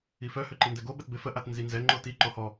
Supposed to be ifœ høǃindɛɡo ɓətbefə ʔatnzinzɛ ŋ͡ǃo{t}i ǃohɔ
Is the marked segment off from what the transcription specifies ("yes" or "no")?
no